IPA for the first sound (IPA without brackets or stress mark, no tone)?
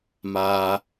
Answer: m